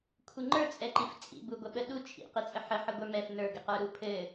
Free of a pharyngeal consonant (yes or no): no